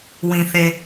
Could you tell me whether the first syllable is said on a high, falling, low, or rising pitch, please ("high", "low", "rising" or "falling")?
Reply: low